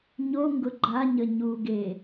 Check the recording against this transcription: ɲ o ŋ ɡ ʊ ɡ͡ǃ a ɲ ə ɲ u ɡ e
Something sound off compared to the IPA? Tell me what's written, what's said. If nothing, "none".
none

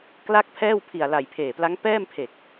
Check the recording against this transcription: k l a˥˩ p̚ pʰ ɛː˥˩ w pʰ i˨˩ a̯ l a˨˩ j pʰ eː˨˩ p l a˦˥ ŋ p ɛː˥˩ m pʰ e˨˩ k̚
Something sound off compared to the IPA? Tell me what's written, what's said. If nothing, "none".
p̚ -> k̚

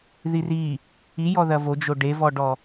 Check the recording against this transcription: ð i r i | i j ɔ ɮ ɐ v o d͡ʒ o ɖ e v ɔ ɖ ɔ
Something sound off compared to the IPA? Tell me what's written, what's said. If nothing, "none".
ɮ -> ð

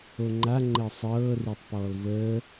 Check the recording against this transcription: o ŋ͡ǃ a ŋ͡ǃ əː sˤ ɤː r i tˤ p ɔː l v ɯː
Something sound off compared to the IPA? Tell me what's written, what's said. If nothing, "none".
ɯː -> əː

